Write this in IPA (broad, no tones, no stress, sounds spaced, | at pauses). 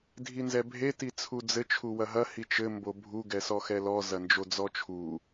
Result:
dʱ i n z ɛ bʱ e t i t͡sʰ u d͡z ɘ t͡ʃʰ u w ɐ ɦ ɐ h i t͡ʃ ɘ m b o bʱ u ɡ ɛ s ɔ x ɛ l ɔ z ɐ n d͡ʒ o d͡z ɔ t͡ʃʰ u